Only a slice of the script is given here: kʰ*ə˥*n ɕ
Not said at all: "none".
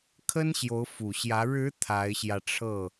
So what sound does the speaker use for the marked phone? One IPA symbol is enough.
ə˥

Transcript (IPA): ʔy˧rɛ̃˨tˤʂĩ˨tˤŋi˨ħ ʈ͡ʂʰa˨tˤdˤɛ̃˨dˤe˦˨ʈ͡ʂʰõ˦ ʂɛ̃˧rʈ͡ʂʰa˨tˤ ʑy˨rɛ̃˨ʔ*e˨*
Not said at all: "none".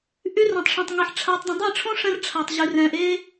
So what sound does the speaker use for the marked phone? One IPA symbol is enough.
e˦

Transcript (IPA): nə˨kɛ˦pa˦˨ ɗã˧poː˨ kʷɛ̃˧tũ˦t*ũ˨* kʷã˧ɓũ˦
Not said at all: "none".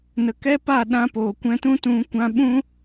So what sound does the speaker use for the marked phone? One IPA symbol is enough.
ũ˧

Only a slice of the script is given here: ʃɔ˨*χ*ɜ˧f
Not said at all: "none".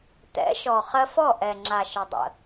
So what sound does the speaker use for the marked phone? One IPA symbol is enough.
χ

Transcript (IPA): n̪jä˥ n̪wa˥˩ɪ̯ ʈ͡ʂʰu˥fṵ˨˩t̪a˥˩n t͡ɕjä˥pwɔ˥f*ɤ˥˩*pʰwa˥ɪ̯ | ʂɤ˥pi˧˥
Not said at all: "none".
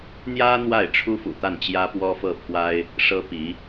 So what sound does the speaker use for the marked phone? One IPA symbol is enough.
ɤ˥˩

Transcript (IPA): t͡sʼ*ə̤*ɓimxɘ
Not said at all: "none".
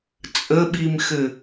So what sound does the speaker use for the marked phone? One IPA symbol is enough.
ə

